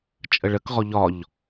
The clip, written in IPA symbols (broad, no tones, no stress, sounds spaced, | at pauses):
t͡ʃʼ ə ɭ ə k ʁ ɔ ʎ ɒ ʎ